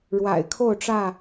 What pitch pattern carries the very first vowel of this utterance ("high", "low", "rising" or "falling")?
low